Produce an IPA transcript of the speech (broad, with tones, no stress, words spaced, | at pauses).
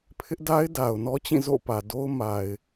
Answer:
pʰɪ˦ʔda˦ɪ̯da˨ʊ̯nɔ˦ t͡ɕĩ˦˨zo̰˦˨pä˨ do˦ʊ̯ ma˨ɪ̯